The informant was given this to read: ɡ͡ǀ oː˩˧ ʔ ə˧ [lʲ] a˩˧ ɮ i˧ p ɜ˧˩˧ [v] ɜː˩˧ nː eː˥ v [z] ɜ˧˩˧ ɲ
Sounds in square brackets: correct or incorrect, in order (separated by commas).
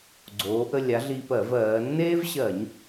correct, correct, incorrect